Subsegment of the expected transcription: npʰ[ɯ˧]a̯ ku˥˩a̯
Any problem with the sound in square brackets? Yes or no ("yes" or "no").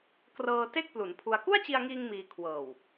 yes